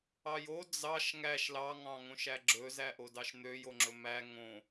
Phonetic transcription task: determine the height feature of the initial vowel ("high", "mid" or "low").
low